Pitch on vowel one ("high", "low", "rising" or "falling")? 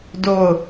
falling